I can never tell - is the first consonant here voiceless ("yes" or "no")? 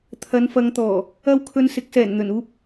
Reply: yes